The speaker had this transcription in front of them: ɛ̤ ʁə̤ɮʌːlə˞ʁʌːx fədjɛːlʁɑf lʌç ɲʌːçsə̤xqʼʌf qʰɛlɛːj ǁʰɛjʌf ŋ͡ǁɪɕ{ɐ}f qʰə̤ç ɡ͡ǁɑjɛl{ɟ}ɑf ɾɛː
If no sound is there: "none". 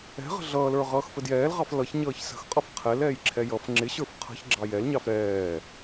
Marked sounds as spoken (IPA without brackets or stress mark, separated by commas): ə˞, ɲ